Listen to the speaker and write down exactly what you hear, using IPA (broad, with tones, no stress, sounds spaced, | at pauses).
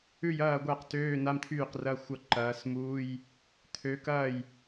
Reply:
ʉ˥˩ j ɐː˥˩ ɡʷ a˥˩ q t øː˧˥˧ n a˧˥˧ m t̪ʰ yː˥˩ q r ɐ˧˥˧ xʷ ɐ˥˩ ǃ ɐː˨˦ s m uː˧˥˧ j | t̪ʰ ø˨˦ k ɐː˥˩ j